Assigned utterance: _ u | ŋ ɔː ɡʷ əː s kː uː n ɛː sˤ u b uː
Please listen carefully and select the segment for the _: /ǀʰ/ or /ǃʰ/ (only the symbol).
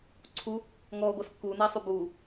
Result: ǀʰ